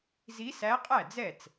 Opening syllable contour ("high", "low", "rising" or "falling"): rising